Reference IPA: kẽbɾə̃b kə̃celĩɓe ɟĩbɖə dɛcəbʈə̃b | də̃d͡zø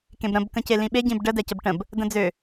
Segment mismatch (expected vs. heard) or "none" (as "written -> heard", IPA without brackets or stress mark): none